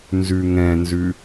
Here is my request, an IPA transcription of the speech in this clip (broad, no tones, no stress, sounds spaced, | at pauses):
n z ʉ ŋ ɛ̃ n z ʉ